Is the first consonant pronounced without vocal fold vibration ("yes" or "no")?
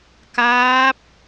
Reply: yes